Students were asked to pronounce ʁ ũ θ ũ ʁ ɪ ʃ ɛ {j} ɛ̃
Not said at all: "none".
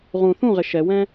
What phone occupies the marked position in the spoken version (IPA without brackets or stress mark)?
w